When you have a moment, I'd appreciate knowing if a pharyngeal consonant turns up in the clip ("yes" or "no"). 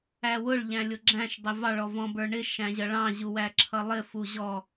no